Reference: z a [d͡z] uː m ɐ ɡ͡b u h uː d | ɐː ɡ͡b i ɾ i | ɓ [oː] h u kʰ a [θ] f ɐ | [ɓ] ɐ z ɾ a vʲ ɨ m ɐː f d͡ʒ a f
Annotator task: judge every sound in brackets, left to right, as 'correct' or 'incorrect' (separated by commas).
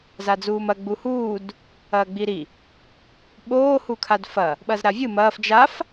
correct, correct, incorrect, correct